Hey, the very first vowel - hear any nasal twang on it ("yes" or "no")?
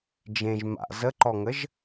yes